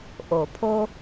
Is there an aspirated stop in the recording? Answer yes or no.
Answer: yes